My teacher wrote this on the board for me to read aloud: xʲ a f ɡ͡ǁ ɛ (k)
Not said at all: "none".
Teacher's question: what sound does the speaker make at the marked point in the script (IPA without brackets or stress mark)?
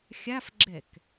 k